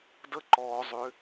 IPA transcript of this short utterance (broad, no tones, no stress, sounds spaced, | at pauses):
d ə ǃ ɔː zˤ ʏ